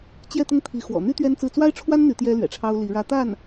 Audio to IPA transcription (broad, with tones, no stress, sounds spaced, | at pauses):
t͡ɕ j ɛ˥˧ t̪ ʊ˥˩ ŋ t̪ʰ i˧˥ x w ɔ̰˨˩ n̪ y˥ t̪ ɥ ɛ˥ n t͡s ɹ̩˥˩ t͡s w a˥ ɪ̯ ʈ͡ʂʰ w a˥ n n̪ y˧˥ t̪ j ɛ˥ l ɥ ɛ̰˨˩ ʈ͡ʂʰ ɑ˥ ʊ̯ l i˧˥ ɻ ä˥ t̪ a˥˩ n